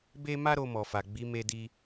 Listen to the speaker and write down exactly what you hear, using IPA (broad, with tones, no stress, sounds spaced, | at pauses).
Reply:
b e˦ m a˦ ɾ o˧ m ɔ˨ f a˨ ɡ͡b i˨˦ m e˧ d i˧